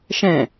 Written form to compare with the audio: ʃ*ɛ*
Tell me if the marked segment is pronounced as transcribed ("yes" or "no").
no